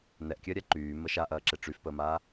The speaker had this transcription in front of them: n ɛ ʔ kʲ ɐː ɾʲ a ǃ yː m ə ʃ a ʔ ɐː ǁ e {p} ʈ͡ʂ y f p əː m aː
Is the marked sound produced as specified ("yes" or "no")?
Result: no